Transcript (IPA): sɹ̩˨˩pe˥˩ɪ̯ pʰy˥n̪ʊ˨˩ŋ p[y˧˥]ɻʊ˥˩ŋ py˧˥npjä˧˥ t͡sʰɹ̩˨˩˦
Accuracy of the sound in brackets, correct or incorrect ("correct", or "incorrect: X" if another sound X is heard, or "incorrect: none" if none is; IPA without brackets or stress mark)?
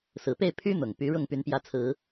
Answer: correct